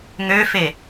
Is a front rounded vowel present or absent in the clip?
present